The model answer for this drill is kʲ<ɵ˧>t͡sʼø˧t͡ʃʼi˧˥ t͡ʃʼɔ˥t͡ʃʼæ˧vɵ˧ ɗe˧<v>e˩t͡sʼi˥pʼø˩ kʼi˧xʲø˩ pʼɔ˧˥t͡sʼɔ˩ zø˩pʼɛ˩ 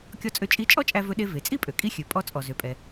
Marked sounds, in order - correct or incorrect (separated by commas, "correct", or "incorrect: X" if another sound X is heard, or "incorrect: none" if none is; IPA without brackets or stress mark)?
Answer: incorrect: ɔ˧, correct